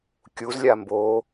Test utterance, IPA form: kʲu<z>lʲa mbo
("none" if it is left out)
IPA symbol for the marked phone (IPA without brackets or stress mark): z